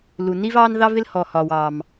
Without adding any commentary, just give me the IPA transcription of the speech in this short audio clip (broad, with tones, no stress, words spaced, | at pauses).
lu˩ ni˥vɑː˥n ðɑ˥vɪ˥l hɔ˩hɒː˩w ɑː˩m